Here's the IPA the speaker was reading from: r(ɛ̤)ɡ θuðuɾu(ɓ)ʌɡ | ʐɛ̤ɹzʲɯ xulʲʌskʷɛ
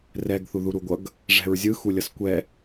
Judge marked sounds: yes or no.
no, no

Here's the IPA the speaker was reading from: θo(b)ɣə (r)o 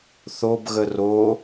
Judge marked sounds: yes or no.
yes, yes

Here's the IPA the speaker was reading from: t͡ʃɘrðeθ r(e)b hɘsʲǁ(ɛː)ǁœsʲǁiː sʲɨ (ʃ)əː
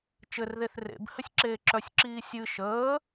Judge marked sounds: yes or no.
no, no, yes

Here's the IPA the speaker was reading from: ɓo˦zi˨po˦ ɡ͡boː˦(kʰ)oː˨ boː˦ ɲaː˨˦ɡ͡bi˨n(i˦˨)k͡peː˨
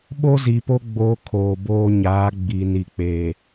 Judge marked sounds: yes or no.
yes, no

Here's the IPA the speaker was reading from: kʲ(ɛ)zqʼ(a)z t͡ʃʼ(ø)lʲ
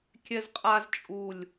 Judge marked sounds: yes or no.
yes, yes, no

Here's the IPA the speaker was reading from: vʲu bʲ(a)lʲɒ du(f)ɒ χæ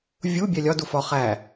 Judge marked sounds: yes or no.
no, yes

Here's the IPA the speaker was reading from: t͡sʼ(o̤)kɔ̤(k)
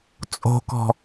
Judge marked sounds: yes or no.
yes, no

